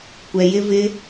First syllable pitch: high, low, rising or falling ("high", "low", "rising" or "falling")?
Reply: low